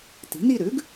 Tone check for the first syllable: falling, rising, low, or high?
rising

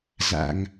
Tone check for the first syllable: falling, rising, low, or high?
low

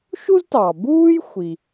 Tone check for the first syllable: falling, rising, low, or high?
high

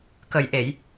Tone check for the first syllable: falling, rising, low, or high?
low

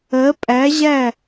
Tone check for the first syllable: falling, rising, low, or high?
rising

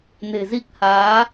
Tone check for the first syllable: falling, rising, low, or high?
low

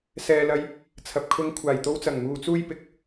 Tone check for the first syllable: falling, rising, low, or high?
low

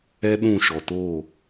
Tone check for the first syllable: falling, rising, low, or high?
high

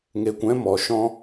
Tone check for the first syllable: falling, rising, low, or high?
low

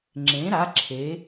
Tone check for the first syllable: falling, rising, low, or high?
rising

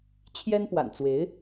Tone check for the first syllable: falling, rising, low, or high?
high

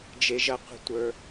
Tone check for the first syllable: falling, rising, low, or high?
low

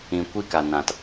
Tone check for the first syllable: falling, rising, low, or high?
low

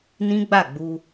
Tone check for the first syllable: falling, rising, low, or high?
high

